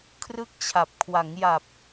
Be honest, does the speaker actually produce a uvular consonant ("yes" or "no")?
no